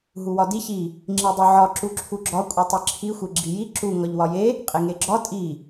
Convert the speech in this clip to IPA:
ɦuwɒdi çi | ŋ͡ǁidˤoʕɒ ǁuǁʰuɡ͡ǁɒ kʷʼitˤeǁʰi xʷeɡ͡ǁiji ǁu ŋɒʎwɒje | qʼeŋeɡ͡ǁɒ tʼi

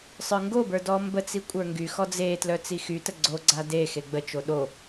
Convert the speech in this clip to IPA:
sˤə˞ŋɡobə˞ dɔmbət͡si kʷʼə˞ŋɡyxɔ d͡zetlœ t͡sixytə ɡ͡ǀoɡ͡ǀa de xeɡ͡bət͡ʃo ɗo

